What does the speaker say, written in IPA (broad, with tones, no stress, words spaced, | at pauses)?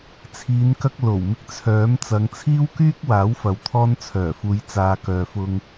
t͡sʰiː˨˧nkɐ˧k̚ lo˨˩w mɪ˧k̚t͡sʰœː˨˥mt͡sɐ˨˧ŋ t͡sʰiː˥wkyː˥k̚waː˨˥wfɐ˨w t̪ʰɔː˧nt͡sʰœː˨˩fuː˨˧j t͡saː˧ kœː˨fʊ˧ŋ